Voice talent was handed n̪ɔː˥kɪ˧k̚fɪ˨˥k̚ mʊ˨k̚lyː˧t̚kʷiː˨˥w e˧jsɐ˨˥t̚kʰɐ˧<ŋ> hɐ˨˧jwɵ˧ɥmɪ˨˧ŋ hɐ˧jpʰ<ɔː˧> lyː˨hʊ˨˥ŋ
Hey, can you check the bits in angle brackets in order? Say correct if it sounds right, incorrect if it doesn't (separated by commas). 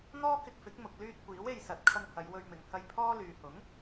correct, incorrect